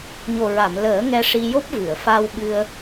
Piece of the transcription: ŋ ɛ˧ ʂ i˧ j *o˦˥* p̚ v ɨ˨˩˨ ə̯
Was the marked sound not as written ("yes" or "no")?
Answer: no